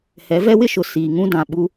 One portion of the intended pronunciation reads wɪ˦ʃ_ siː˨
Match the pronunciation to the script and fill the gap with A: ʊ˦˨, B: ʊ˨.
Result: B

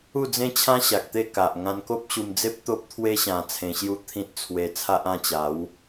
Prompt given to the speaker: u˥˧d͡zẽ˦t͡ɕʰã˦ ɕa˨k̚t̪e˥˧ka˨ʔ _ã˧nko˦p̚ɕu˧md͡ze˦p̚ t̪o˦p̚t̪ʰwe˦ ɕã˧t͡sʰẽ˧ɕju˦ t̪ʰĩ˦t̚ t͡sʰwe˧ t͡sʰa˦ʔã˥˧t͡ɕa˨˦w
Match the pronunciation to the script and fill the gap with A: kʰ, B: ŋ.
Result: B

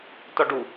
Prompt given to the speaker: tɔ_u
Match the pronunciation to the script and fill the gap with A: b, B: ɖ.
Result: B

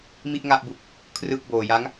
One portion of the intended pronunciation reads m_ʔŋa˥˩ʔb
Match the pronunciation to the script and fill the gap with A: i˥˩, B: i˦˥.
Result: A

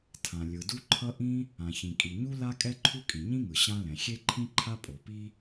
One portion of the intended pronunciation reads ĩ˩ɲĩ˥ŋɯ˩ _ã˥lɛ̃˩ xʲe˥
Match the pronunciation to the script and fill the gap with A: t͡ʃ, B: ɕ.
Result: B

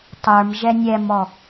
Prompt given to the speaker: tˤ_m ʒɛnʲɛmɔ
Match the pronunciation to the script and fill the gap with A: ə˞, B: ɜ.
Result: A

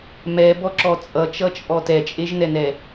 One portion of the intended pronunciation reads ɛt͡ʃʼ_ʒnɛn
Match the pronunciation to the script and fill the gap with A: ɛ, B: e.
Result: B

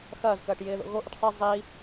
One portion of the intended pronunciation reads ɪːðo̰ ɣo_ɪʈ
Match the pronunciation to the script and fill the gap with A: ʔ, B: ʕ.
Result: A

